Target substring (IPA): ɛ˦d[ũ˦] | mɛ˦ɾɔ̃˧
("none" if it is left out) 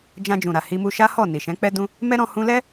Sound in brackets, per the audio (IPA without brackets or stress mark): ũ˦